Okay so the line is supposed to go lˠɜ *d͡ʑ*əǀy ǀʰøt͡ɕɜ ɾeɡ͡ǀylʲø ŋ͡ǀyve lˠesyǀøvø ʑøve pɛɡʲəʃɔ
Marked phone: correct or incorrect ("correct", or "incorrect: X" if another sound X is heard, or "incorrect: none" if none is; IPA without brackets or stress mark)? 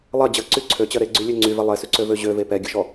correct